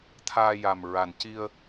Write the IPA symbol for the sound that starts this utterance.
t̪ʰ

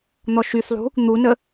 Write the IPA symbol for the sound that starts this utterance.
n̪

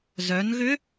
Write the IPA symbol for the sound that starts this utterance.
z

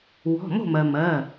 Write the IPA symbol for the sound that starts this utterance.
w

